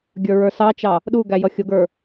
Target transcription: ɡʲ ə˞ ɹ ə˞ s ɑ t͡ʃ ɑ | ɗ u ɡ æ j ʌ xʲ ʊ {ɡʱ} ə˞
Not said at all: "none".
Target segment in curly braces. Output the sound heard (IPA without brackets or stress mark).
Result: ɡ